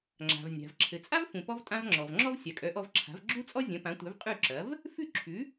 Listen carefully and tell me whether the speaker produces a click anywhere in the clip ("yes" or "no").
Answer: yes